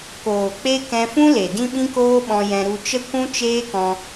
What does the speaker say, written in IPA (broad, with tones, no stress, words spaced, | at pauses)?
koː˨k͡pe˦ kɛ̃˧fũ˦ le˨dĩ˦ɓĩ˦koː˦ ɓɔ̃˧jɛ̃˧ ɾu˧t͡ʃə˦ kʷũ˦t͡ʃeː˦kɔ̃˧